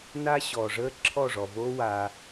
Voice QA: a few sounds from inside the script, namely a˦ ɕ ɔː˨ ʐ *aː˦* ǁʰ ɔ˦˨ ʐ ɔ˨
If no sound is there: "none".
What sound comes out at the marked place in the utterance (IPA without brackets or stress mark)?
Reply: əː˦